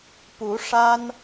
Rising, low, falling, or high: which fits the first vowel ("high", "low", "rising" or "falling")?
rising